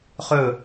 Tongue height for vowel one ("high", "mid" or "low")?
mid